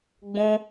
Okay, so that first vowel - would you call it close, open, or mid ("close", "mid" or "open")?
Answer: close